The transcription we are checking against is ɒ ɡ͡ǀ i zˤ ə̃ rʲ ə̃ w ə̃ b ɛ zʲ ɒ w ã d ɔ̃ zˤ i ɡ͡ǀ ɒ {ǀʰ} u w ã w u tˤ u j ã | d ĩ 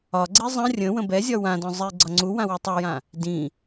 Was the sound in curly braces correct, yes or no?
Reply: no